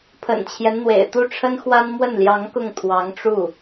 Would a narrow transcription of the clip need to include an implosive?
no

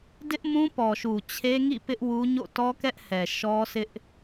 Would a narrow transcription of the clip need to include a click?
no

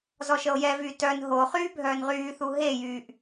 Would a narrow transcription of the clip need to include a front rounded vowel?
yes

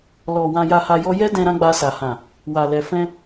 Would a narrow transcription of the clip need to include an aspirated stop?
no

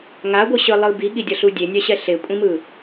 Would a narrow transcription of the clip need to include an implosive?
yes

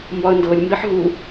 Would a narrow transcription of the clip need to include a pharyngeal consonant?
yes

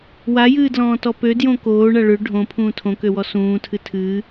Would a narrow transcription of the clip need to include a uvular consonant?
no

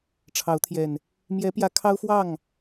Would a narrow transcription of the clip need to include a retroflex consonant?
yes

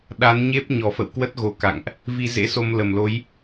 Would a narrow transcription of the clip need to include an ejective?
no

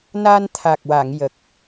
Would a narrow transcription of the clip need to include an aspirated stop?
yes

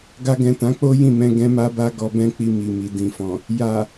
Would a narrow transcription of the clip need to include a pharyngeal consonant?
no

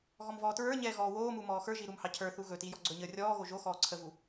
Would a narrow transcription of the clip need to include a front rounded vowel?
no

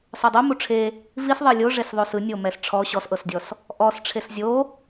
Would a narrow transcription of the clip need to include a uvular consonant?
no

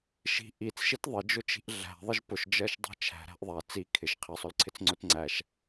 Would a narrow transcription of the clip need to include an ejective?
no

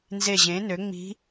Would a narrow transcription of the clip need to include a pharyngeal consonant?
no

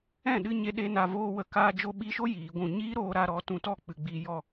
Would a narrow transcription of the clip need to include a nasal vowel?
yes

